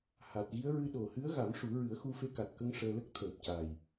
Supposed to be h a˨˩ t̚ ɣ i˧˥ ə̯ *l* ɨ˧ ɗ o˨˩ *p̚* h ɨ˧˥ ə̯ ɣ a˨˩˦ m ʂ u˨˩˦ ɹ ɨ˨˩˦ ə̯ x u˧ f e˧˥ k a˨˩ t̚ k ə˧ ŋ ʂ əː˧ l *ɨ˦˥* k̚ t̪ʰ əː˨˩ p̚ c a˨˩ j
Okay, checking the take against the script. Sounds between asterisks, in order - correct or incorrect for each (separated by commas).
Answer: incorrect, incorrect, incorrect